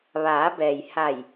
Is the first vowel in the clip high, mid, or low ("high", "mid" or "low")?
low